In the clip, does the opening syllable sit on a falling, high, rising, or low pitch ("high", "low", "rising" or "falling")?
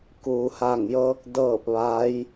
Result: low